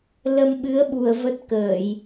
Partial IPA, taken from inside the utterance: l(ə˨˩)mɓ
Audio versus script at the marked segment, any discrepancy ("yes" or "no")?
yes